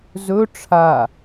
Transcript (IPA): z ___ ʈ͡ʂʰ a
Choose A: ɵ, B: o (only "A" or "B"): A